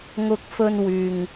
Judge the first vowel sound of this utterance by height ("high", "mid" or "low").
high